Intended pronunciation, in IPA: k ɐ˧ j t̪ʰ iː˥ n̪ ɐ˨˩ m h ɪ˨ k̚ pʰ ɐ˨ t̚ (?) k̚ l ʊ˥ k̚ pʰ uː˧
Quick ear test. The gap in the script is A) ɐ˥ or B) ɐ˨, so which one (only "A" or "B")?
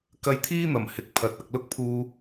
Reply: B